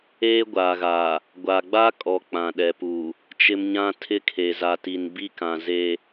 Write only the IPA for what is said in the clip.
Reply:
eː˦ɡʷaː˨ɣaː˨ | ɡʷa˨ ɡ͡ba˦kʼɔ˨ k͡pã˨ɗɛ˨pu˨ | t͡ʃɪ˦mɲã˦ tʰɪ˦kʰe˨za˨ti˨n bi˦kã˨ ze˦

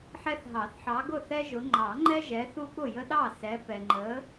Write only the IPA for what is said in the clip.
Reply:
ħɛ˦θɦɑ˨˩˦θħɑ˨˦ ɡʊ˥˩θɛ˦ʒʊ˨˦ ŋ͡ǃɑ˨˩˦ŋ͡ǃɛ˦ ʒɛ˨˦θu˦ ɠʊ˥˩jə˦ɗɑ˥˩sɛ˨˦ pɛ˨ŋ͡ǃə˨˦

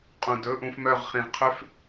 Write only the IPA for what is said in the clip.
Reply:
qʼũ˨dɵ˦ʔũ˧fmœ˦˨ʁ χĩ˨ʁqʰø˦f

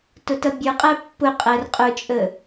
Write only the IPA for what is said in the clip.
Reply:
tʊtʌbʲə˞qʼæ pːʊqʼær qʼʊt͡ʃʼə

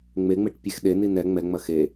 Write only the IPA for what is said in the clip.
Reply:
ŋ͡meŋ͡meʈpʲex ɗeni nɛ ŋ͡mɛŋ͡mɐ xe

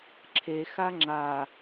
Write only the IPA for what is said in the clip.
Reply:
ǁʰe xaŋ͡ǁa

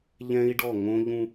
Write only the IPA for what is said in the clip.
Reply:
ʎɛ̃˦i̯ɖɔ˦˨ŋõ˦ ʎũ˦

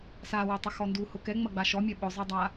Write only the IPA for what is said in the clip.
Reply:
sawotˤɐxɔ nduhʊ kɛŋ͡mɐɡ͡ba ʃɔmʲɛ ɓʊzˤɛdˤa

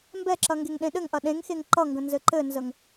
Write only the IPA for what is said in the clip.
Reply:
mbɛǁɐ ŋɡeŋɗẽɗɘŋʔɐ ɗẽŋxeŋ ǃʌŋɡə̃ nzɘǃɘnzəŋ

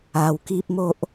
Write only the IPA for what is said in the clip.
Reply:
a˧wki˦p̚ mo˦ʔ

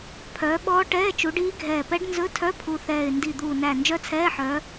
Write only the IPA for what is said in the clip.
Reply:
pʰœː˨˦ɓɔː˦˥ʈɛː˧˥˧ t͡ʃu˨˦ɖiː˦˥ɡʱɛː˧˩ pɛ˦˥ɖ nzɵ˧˥˧tʰœ˧˥˧ pʰu˧˩θɛː˧˩ɪ̯ ndi˧˩d̪uː˧˩næ˧˩ nd͡ʒœ˦˥t͡sʰɛː˧˥˧ħœː˨˦

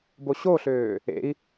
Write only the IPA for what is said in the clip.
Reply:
boɕoɬøː | ḛi̯

